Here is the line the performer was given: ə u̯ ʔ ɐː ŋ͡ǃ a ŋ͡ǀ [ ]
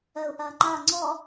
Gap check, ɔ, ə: ɔ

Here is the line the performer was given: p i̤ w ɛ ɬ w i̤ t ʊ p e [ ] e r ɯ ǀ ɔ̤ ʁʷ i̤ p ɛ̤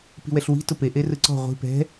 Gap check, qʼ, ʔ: ʔ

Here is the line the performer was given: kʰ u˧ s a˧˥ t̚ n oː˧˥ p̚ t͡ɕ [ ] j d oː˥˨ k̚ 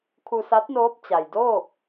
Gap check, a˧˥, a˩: a˩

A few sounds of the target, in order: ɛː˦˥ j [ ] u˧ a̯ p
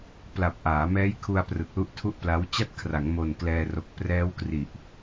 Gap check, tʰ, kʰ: kʰ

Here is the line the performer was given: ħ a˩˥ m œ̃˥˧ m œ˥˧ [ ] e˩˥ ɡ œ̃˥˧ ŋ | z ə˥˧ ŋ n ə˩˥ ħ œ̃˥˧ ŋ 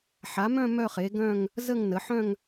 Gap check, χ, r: χ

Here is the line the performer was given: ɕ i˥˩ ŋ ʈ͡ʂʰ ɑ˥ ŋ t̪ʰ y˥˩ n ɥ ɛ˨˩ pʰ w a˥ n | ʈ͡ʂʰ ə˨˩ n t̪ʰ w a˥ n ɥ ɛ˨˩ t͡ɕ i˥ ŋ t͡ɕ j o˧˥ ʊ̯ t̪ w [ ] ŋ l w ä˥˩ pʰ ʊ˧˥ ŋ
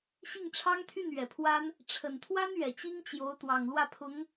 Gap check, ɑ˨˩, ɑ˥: ɑ˨˩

